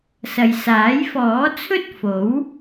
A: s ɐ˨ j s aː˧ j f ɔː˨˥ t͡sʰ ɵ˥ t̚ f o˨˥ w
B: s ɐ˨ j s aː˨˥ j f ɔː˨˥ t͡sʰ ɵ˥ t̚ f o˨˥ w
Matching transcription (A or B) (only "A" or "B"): B